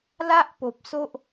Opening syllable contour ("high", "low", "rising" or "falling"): high